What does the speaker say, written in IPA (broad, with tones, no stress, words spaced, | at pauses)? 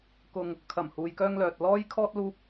kʊ˧ŋ | kʰɐ˨˩mhuː˨jkœː˧ŋlœː˨t̚ lɔː˥jkʰɔː˥t̚ luː˥p̚